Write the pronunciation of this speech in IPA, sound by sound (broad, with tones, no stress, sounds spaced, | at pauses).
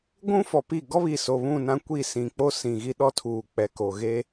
ɡʷ ũ˦ f ɔ˨ p i˦˨ ɡ ɔ˦ β i˨ s o˨ β ũ˦˨ n ã˦ kʷ i˦˨ s ĩ˨ k͡p o˦ s ĩ˨ ɣ i˦ ɗ ɔ˦ tʰ uː˨ k͡p ɛ˨ k o˨ ɣ e˦